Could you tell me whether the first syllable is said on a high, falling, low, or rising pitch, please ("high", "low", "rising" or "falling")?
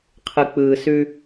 low